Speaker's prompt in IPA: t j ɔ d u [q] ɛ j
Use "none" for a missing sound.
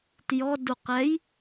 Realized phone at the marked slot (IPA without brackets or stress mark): q